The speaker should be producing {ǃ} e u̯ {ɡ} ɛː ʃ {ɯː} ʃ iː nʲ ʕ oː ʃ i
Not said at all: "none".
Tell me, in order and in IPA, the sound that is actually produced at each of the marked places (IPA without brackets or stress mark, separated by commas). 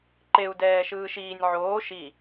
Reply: ǃ, d, ɯː